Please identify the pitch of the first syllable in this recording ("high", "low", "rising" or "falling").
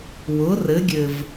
rising